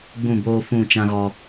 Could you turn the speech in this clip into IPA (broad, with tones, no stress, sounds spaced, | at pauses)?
ɡ͡b ũ˦˨ b oː˦ f ũ˦˨ t͡ʃ ã˦ ɣ ɔ˦